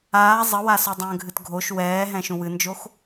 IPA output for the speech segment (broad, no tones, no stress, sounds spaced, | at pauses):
aː zˤ ə w a s o dˤ ə̃ː ɡʱ ɨ t ɡʱ o ʃ w ɛː ɦ ɛ̃ ʃ ũ w ɨ n d͡ʒ o x